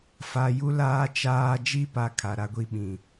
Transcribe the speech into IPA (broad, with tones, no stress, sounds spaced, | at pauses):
f a˨ j u˦ l aː˦ t͡ʃ aː˦ d͡ʒ i˦ p a˨ kʰ a˨ ɾ a˦ ɡʷ i˦ ɓ ĩ˨